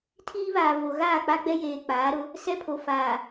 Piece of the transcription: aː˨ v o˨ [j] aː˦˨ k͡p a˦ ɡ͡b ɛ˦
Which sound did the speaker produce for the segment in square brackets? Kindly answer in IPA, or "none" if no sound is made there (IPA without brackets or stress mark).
ɣ